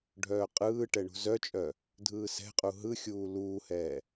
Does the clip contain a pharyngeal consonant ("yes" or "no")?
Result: no